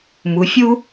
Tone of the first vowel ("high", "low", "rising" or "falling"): rising